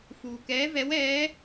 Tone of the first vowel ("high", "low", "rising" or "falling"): low